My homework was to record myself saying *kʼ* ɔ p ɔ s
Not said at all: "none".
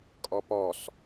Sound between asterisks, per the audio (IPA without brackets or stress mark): kʼ